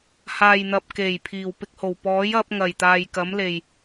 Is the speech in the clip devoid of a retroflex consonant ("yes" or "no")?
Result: yes